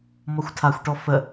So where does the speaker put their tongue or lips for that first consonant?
lips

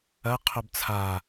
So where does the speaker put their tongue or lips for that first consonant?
uvula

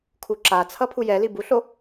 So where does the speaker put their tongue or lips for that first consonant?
velum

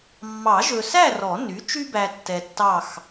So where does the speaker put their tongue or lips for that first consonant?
lips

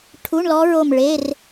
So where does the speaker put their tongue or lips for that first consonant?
retroflex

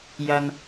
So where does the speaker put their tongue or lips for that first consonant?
palate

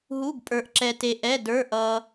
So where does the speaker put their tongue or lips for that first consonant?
throat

